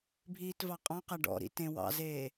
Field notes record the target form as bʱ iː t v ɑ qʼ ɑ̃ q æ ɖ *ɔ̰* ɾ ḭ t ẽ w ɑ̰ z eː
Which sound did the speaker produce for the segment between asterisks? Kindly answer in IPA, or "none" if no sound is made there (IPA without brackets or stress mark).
ɔ̰